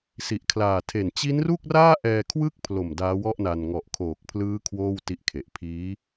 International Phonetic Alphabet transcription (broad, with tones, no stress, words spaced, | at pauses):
si˨˩ʔkʰlaː˨˩ tʰe˨˩n t͡ɕi˦˥nru˥˩k̚raː˥˩ ʔɛː˧kʰwɯ˥˩k̚pʰlo˨˩m daː˦˥wɔ˥˩ʔna˧n ŋɔ˨˩ʔ kʰoː˨˩k̚pʰlɯː˦˥ kʰwoː˥˩wti˦˥ʔkʰe˨˩ʔ pʰiː˦˥